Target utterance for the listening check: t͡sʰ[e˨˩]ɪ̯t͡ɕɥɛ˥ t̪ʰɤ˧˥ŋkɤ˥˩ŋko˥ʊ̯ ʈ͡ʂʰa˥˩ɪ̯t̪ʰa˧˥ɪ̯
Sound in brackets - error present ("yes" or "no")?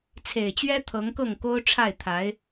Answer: no